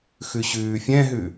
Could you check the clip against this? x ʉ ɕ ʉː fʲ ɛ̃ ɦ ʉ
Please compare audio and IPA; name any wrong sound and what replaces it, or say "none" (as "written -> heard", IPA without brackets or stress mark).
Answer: none